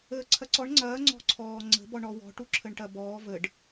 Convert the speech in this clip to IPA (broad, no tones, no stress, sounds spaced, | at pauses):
əː ǀʰ ɐ ǀ ɔ ɳ ŋ͡ǀ ɐː ŋ͡ǀ ɔ̤ ǀʰ ɔː ŋ͡ǀ ə̤ b ɔ ɳ ɔ w ɔ̤ ʈ u ǁʰ ə ɳ ʈ ɐ b ɔː v ə ɖ